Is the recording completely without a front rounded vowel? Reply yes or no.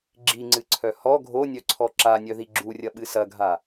no